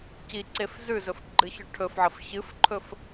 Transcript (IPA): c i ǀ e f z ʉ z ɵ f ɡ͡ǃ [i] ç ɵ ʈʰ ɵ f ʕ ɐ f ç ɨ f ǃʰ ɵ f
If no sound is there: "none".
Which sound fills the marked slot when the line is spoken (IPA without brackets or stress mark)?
ɨ